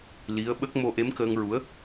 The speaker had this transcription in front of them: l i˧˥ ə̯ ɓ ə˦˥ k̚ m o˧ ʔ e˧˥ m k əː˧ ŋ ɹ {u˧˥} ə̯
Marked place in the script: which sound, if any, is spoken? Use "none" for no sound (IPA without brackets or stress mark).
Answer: u˧˥